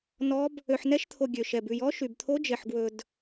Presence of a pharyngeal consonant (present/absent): present